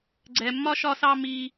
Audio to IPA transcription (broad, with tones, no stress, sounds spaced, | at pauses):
ɡ͡ǀ ɛ˧ mː ɒ˦ ʃ ɒ˦ s ɑ˦ m i˦